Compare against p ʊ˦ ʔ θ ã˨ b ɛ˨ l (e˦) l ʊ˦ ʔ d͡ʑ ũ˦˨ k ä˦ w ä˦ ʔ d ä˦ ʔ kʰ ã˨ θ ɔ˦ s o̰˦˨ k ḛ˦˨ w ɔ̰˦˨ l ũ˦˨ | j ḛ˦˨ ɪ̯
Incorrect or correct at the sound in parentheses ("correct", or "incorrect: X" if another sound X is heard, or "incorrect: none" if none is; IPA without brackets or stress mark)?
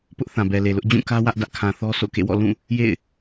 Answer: incorrect: e˨